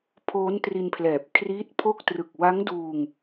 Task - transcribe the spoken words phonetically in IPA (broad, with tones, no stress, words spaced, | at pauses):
pʰoː˦˥ntri˧npʰlɛː˨˩p̚ kʰriː˦˥t̚pʰo˥˩k̚ trɯ˨˩k̚wa˦˥ŋduː˧ŋ